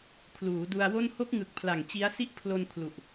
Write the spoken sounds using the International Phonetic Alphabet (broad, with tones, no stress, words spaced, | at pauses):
kʰluː˩˦du˧a̯wo˥˩n ho˦˥k̚ŋɯ˨˩k̚pʰla˨˩ŋ t͡ɕi˦˥a̯ si˦˥ʔpʰlo˧nkʰlu˨˩ʔ